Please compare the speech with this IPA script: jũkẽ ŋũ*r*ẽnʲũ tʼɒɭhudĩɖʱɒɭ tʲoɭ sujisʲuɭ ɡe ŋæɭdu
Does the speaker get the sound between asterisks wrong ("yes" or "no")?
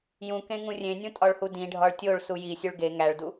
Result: yes